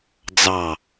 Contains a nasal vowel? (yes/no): no